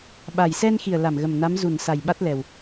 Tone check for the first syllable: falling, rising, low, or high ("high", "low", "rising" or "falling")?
low